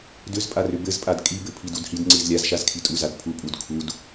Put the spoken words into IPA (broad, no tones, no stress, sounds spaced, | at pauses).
d ʏ z pʼ a r ʏ b ɘ z pʼ a d kʼ i b ɘ pʰ i d u d h i d ŋ͡ǀ i z lʲ a z ʃ a z kʰ i tʼ u z a d pʰ u pʼ u d kʰ u d